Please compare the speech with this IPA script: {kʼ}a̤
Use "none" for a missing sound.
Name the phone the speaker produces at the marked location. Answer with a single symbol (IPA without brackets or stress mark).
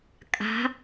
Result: kʼ